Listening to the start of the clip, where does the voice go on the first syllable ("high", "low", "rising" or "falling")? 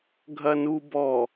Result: low